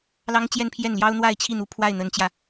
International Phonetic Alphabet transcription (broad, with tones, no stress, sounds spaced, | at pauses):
l ɑ˥ ŋ t͡ɕ j ɛ˥˧ n pʰ j ɛ˥˩ n l j ɑ˥ ʊ̯ n̪ w a˥˧ ɪ̯ t͡ɕʰ i˥˩ n̪ u˧˥ pʰ w a˥˩ ɪ̯ n̪ ə˧˥ n t͡ɕ j ä˧